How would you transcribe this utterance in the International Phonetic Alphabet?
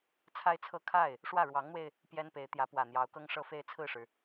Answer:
t͡sʰa˥ɪ̯t͡sʰɤ˥˧ kʰa˥˩ɪ̯ | ʂwä˥˩ɻwɑ˧˥ŋn̪we˧ɪ̯ | pjɛ˥npe˧˥ɪ̯ t̪jä˧˥pwä˨˩n̪jɑ˧˥ʊ̯kɤ˥ŋ ʂɤ˥˧fe˥˧ɪ̯ t͡sʰɹ̩˥˩ʂɻ̩˩

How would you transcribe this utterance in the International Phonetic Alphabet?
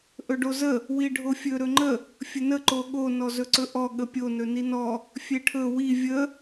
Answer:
ʔɵɖozə | wiɖʱofʲɵ ɾɵŋ͡ǃə | fʲənə ǃoɠo nɔzɵǀɵʔɔ ɠəpʲo nɵninɔ | fʲeʈʰɵ wi vʲə

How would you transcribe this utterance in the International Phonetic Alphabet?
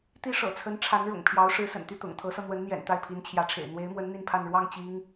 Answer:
t̪i˥ʂɤ̰˨˩t͡sʰə˧˥nʈ͡ʂʰa˧˥n ɻʊ̰˨˩ŋpʰjɑ˧˥ʊ̯ ʂɻ̩˧˥sə̰˨˩nt̪y˥˩ t̪ʊ̰˨˩ŋ t̪ʰɤ˧˥sɤ˧ n̪wə˧˥nn̪jɛ̰˨˩n t̪a˥˩ɪ̯pʰi˧˥nt͡ɕʰjä˧˥ʈ͡ʂʰḛ˨˩ɪ̯ n̪we˧˥ɪ̯mwə˧˥n n̪i˥˧npʰa˥˧n ɻwɑ˥˩ŋ t͡ɕi˥ŋ

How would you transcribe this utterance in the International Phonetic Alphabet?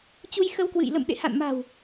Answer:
t͡ɕu˧jxə˧wkwɨ̰˧˨j lə̰˧˨mɗḛ˧˨ha̰˧˨nma̤˨˩w

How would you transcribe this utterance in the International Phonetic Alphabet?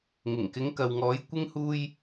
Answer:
ŋɪ˨˩ŋkɪ˨˧ŋkɐ˨wŋɔː˨˧j kʷɪ˥ŋhuː˥j

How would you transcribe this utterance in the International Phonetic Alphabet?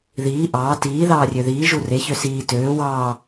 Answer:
ðiː ʔɑː tiː ðɑːrʲøðiː ʒure çøsiː tøː wɑː

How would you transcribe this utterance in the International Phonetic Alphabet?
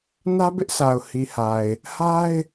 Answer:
nä˦bɪ˦ʔsʰa˨ʊ̯ hi˨ha˨ɪ̯ | ha˦ɪ̯

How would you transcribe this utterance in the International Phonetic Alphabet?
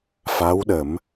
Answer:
fa˧˥wɗə˨˩˦m

